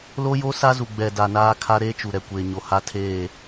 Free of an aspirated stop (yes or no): no